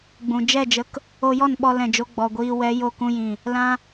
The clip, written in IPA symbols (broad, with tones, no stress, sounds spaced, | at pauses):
ɡ͡b ũ˨ d͡ʒ ɛ˦˨ d͡ʒ ə˧ k | o˧ j ɔ˦˨ n ɓ ɔ˧ l ɛ̃˨ d͡ʒ o˧ ɡ͡b ɔ˨ ɡʷ iː˧ w ɛ˨˦ j o˧ k ũ˧ j ĩ˨ | l ã˦